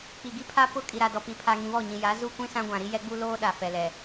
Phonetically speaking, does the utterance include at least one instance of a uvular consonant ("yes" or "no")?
no